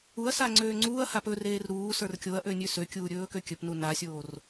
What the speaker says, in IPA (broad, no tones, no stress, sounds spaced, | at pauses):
u ɐ̯ s a ŋ͡ǀ øː ŋ͡ǀ uː ɐ̯ h a p ɵ r eː r ɾ uː s ə˞ r kʲ o ɐ̯ ʔ ø nʲ ø s ø kʲ uː ɾʲ ɵː k ø kʲ ɵ p n u n a sʲ oː r